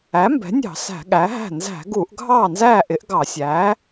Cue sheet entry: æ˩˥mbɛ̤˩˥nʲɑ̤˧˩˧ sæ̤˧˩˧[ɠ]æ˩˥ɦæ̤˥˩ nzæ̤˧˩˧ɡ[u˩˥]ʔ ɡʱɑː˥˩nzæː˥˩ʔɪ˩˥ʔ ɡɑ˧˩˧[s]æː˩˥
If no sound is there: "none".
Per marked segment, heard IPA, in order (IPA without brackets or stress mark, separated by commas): ɠ, u˧˩˧, sʲ